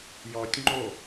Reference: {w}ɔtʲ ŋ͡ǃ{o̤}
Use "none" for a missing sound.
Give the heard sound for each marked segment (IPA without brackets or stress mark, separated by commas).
j, o